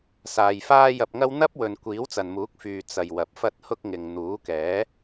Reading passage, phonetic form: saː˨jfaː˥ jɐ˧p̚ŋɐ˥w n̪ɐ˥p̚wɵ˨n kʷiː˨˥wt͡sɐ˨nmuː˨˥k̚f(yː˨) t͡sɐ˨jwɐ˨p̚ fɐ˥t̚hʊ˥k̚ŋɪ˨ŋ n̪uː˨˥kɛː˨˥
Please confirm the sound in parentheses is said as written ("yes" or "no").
yes